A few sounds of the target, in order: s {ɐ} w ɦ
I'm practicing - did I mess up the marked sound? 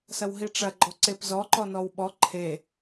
no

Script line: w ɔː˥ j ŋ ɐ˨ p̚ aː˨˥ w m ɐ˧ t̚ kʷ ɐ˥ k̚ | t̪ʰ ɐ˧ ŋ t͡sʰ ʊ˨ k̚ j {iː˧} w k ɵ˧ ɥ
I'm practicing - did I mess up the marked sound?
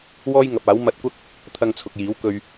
yes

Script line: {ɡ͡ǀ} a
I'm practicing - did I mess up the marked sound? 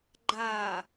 yes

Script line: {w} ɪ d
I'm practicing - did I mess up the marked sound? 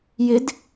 yes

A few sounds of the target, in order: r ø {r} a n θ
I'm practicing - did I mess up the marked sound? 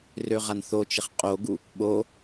yes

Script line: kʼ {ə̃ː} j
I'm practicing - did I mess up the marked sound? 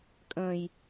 no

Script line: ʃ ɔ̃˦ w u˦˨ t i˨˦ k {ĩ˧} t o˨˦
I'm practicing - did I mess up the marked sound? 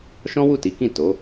yes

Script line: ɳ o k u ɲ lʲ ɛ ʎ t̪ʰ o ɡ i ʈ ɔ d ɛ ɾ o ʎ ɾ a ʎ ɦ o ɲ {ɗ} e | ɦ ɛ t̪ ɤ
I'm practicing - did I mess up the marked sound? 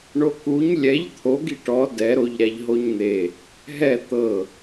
yes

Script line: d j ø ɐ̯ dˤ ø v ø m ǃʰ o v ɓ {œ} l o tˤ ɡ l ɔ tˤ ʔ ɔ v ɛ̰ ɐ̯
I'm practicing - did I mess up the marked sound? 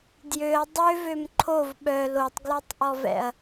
no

